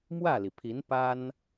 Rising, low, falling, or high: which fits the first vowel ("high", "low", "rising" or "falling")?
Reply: falling